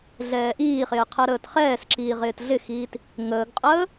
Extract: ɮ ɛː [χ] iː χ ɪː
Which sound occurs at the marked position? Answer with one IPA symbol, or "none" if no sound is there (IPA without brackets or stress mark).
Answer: ʔ